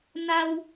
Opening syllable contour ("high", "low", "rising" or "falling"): high